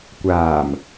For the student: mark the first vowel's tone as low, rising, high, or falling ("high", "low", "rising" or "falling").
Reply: low